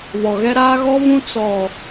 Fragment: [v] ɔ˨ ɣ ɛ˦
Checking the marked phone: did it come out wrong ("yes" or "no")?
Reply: yes